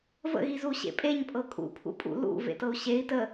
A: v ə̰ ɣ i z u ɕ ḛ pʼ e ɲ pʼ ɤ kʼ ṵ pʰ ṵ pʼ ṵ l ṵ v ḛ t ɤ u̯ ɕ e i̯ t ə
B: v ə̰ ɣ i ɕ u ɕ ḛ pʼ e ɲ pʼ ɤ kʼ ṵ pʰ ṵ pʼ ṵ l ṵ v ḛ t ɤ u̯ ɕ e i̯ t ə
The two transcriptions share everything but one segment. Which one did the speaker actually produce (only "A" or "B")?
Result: A